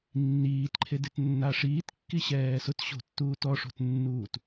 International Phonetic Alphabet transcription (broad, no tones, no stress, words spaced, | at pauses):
nːiːtǃʰedet nːaʂiːtkːi ɕɛːsʊtɕo̤tːuːt ɔʂo̤tnːuːt